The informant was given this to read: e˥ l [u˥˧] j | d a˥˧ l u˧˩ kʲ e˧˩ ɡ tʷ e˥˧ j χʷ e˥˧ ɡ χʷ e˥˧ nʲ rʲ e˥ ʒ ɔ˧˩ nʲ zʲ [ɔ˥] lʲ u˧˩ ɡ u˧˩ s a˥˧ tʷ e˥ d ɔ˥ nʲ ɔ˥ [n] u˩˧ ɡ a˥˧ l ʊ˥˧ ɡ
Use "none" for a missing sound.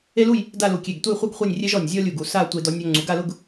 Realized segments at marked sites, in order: u˥˧, ɔ˥, ŋ͡ǀ

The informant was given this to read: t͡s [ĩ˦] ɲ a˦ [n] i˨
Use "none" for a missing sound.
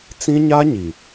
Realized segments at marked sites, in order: ĩ˦, ɲ

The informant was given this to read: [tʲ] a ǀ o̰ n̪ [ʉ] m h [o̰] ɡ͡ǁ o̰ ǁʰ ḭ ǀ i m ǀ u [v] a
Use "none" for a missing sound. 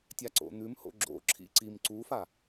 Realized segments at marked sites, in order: tʲ, ʉ, o̰, f

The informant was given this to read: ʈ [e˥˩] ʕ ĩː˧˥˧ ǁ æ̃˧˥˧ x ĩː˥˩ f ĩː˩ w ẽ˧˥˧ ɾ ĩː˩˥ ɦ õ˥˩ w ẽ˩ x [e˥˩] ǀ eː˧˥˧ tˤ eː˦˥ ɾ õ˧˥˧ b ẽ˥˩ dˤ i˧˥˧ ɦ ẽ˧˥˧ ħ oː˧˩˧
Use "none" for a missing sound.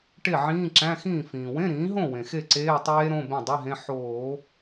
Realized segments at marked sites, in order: e˥˩, e˥˩

